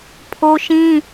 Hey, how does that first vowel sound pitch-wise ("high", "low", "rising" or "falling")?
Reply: high